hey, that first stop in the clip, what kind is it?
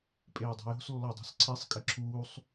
ejective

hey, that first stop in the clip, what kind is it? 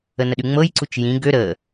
implosive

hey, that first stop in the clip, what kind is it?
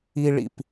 plain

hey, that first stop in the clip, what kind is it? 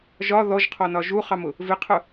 aspirated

